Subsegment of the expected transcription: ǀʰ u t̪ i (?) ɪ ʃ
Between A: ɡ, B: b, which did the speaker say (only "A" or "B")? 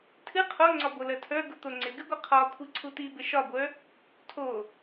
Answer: B